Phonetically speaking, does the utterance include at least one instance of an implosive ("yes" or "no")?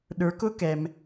yes